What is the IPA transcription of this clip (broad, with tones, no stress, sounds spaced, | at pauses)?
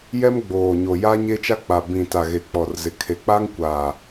j ɛ˦ m ɡ͡b oː˨ ɲ o˨ j a˦ ɲ e˦ t͡ʃ a˦ k͡p a˨ b ĩ˨ t a˨ ɣ e˨ k͡p ɔ˨ r z ɪ˨ kʰ e˨ k͡p a˦ ŋ kʷ aː˨